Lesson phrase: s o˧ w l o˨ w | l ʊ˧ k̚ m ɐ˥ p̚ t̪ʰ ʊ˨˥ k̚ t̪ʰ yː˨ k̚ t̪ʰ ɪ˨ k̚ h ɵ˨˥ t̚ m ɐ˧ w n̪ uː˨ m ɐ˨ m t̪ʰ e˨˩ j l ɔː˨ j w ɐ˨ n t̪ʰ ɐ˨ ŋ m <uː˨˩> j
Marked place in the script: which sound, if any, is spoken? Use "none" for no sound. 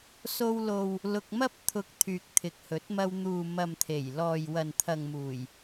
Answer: uː˨˩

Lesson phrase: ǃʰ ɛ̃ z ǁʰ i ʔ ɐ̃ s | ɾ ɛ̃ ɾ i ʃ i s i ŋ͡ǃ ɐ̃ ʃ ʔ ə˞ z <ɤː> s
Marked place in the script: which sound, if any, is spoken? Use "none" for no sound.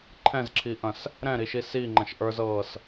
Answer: ɤː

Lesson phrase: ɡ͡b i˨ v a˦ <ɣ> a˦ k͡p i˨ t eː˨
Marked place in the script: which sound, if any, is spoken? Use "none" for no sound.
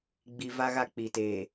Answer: ɣ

